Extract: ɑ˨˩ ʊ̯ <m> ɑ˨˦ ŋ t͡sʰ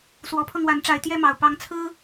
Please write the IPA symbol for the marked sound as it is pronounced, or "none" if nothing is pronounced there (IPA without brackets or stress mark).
p